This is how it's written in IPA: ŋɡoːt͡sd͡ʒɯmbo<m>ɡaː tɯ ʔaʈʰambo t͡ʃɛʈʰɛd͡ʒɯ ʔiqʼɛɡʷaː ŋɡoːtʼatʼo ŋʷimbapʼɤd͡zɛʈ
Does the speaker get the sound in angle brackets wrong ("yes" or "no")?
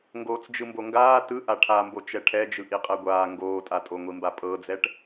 yes